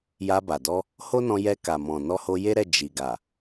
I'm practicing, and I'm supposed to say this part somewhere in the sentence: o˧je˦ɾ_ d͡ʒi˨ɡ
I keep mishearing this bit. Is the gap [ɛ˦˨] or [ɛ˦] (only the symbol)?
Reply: ɛ˦˨